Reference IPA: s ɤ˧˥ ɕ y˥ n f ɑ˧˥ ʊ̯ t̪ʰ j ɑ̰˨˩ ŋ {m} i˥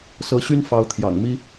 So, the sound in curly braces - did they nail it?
yes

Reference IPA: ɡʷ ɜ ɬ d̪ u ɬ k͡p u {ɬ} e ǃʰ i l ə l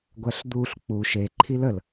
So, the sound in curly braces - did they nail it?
no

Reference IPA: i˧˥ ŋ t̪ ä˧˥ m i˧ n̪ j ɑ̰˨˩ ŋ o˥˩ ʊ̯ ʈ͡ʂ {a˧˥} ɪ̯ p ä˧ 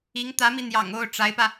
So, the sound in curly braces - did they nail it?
yes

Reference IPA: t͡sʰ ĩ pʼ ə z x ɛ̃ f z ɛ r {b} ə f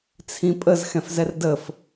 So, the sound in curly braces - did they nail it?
no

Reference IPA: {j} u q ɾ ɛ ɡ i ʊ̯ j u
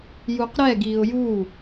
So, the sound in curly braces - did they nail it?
yes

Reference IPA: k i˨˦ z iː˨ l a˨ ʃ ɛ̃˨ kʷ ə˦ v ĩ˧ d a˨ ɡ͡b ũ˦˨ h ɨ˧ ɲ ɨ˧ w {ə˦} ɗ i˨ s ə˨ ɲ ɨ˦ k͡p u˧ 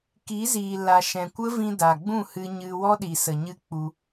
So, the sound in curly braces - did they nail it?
no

